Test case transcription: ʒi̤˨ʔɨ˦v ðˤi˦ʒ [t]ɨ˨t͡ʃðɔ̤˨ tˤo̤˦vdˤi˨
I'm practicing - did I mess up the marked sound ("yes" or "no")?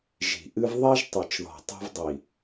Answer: yes